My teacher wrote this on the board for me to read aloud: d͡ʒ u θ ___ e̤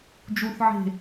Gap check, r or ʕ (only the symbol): ʕ